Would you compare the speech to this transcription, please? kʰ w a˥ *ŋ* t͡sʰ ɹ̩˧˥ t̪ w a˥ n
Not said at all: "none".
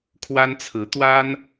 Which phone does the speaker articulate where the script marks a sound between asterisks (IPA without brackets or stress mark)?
n